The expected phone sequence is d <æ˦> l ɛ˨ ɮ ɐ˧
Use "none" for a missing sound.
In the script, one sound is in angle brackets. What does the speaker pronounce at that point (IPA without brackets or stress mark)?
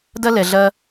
ɐ˦